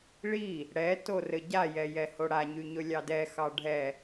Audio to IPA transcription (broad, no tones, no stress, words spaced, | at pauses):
ɭi | ɽɛ torɘɟa jɛjɛhoɽa ɲyɲɵlʲɑdɛ xɑɖʱɛ